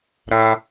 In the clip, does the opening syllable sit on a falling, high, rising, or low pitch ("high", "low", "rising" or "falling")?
high